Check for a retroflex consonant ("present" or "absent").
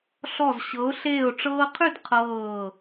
present